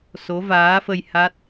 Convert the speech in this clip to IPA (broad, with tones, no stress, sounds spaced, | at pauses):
s o˨˦ v aː˨˦ f ə˧ j h a˦˥ t̚